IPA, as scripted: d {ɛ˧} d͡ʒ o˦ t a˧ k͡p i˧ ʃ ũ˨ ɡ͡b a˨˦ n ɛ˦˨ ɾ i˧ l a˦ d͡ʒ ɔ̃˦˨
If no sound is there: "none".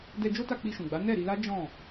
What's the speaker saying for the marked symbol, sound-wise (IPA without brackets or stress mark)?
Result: ɛ˧